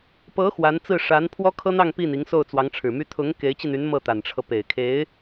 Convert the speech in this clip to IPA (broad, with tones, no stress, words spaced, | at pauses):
pɤ˧˥ xwa˧˥nt͡sɹ̩˥˩ ʂa˧˥n pʰwɔ˥kʰɤ˥n̪ɑ˥˧ŋ pi˥˩ni˧˥ŋ so˥˩ʊ̯t͡swɑ˧˥ŋʈ͡ʂʰɻ̩˨˩my˥ t̪ʰʊ˧˥ŋ ke˧˥ɪ̯t͡ɕi˧n̪y˧˥n mɤ˥˩t̪a˨˩nʈ͡ʂʰɤ˦ pe˨˩ɪ̯kʰe˧˥ɪ̯